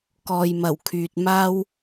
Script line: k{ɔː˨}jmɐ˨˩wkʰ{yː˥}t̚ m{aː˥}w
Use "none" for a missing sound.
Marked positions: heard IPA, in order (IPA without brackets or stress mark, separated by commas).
ɔː˨, yː˨, aː˥